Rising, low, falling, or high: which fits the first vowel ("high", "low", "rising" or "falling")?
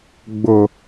low